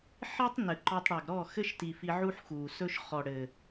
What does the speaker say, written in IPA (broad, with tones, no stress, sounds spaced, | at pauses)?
ħ i˦ tˤ n ɘ˨ ǃ ɔ˧ tˤ ɽ a˨ ɡ ɾ ɔ˦˨ x ɘ˦ ʃ t i˨ f i˧ ʕ u˦ ħ x uː˨ s ɵ˦ ʃ χ ɔ˨ ɽ ɘː˨